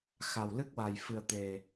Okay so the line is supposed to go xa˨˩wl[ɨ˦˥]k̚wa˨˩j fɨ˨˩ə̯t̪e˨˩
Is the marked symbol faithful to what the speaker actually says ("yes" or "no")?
yes